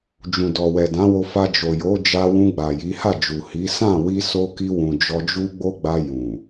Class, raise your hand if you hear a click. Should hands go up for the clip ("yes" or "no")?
no